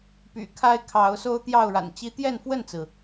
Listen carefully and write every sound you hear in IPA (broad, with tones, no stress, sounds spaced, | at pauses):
p y̰˨˩ kʰ a˦ ɪ̯ kʰ ɑ˨˦ ʊ̯ s o˦ ʊ̯ t̪ j ɑ˥˨ ʊ̯ ɻ a̰˨˩ n t͡ɕ i˦ t̪ j ɛ˥˨ n f w ə˥˨ n t͡s ɹ̩˩